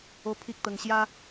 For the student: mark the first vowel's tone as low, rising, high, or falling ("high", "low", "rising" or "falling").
high